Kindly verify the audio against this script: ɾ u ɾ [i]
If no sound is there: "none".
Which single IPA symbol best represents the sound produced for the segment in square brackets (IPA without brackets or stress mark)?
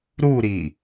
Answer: i